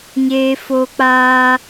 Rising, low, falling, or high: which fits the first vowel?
high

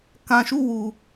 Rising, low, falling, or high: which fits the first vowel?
low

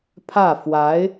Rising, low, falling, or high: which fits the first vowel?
falling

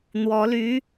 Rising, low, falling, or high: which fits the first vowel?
rising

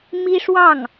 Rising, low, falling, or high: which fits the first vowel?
high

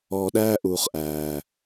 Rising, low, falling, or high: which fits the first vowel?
low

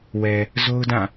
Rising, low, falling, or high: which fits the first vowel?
low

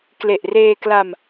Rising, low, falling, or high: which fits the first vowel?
low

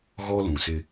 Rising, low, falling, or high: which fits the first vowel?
high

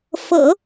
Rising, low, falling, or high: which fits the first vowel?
low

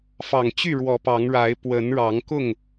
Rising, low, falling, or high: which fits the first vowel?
low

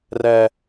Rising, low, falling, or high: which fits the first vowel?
low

